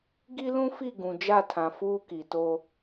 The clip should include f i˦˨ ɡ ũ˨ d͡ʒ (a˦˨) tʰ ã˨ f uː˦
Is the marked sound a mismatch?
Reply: no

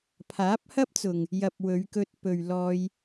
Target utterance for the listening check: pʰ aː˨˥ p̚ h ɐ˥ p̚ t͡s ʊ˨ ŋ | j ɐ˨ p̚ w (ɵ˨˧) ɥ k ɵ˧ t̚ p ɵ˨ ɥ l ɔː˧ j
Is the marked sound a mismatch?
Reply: no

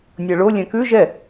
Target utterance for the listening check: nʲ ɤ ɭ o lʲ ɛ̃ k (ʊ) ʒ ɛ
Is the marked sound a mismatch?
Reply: yes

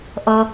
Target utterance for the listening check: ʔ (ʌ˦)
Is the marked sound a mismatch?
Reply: no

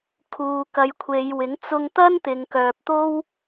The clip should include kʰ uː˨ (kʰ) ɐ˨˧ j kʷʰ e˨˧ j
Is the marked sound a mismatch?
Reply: yes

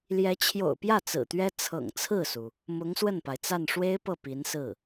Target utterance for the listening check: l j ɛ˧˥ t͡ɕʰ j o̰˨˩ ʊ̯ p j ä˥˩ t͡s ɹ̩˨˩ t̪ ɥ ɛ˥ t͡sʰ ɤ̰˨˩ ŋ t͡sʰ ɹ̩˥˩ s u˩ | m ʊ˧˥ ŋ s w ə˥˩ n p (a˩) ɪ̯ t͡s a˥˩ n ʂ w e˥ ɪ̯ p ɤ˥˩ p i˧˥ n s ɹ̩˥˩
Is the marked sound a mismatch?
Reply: no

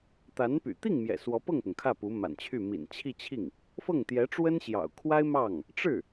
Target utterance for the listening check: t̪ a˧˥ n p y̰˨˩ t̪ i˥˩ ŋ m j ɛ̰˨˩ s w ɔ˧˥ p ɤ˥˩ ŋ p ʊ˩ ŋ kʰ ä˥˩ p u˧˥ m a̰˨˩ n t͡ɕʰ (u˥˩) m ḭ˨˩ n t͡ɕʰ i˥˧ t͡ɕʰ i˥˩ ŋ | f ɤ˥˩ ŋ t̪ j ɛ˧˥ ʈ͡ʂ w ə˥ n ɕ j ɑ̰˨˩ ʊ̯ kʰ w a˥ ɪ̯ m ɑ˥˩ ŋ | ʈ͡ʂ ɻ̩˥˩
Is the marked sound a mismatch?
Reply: yes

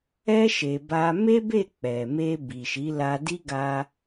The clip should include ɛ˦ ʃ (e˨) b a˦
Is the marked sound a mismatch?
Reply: yes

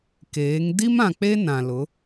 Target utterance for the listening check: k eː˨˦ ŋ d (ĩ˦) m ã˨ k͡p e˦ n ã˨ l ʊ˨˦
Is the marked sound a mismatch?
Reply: yes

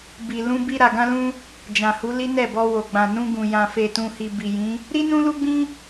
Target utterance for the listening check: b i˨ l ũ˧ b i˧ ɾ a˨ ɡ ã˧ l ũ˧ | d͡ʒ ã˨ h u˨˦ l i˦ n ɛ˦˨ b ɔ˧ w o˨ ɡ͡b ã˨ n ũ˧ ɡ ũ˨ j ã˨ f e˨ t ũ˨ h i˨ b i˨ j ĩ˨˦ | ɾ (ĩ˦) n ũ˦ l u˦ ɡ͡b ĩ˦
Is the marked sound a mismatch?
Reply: yes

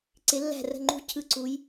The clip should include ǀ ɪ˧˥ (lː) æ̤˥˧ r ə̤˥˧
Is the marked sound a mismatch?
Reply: no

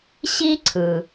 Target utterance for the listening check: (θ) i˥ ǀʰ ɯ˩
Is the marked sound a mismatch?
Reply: yes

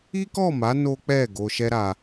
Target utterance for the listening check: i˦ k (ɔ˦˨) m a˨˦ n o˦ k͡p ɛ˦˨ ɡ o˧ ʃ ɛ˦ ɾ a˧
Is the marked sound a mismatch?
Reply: no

